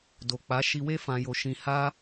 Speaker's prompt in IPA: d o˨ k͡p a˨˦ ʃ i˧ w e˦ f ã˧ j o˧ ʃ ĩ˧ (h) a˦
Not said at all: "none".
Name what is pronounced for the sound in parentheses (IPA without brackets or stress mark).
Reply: h